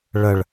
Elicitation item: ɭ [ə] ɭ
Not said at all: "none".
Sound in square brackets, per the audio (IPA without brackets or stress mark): ə